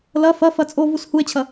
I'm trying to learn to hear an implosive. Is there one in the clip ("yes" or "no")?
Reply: no